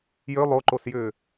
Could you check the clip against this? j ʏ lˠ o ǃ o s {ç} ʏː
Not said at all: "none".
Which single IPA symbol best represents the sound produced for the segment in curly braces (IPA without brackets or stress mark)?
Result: j